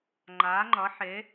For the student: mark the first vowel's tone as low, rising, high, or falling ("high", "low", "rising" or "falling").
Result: rising